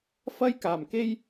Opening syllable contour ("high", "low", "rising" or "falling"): high